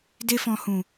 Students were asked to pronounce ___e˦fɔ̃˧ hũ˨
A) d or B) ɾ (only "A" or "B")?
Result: A